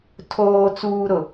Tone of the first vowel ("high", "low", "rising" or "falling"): low